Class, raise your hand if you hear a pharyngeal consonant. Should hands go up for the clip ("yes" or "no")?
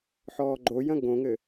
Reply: yes